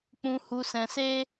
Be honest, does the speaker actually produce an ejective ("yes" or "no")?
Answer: no